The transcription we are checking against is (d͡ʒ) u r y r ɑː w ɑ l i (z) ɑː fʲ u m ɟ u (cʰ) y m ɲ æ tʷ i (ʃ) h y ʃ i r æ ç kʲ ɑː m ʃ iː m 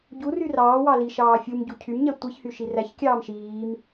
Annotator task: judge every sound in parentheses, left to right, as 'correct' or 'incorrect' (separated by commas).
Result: incorrect, incorrect, correct, incorrect